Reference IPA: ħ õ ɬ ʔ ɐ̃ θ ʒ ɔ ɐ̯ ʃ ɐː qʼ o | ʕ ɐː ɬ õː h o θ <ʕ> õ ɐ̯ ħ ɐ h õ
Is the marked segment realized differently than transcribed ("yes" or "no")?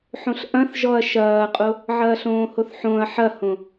yes